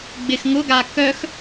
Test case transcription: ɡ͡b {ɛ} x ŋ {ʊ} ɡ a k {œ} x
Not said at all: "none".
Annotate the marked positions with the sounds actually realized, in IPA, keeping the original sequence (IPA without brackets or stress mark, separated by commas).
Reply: ɪ, ʊ, œ